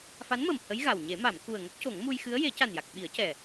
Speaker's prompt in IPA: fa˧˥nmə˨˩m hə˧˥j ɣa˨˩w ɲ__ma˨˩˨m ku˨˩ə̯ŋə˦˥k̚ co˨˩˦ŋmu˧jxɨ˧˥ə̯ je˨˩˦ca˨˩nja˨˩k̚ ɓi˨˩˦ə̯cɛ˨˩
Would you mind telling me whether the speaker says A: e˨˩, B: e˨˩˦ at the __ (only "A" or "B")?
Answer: B